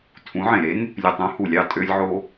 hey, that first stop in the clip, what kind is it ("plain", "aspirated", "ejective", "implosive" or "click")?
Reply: aspirated